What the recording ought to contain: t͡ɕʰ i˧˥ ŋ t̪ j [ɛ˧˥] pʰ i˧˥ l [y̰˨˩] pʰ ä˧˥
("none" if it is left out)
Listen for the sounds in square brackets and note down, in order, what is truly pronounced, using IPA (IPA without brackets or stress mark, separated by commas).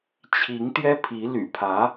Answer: ɛ˥, y̰˨˩